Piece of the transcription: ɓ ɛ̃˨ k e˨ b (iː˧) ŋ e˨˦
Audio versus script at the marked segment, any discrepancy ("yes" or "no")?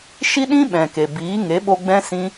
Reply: yes